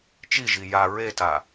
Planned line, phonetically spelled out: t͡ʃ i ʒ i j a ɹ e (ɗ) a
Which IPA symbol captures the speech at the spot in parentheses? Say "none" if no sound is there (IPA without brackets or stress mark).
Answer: t